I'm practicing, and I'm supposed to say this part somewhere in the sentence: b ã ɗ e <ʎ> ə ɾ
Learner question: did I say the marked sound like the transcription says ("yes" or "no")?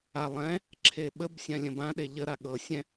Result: yes